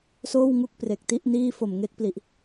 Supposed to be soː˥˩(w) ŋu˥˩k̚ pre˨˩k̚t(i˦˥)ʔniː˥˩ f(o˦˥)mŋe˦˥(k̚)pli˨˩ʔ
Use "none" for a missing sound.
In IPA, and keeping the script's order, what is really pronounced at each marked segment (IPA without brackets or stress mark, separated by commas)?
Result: w, i˥˩, o˨˩, k̚